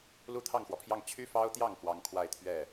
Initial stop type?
aspirated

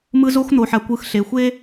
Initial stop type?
plain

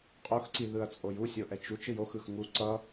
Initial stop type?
ejective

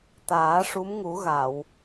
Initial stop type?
plain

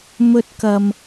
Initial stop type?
plain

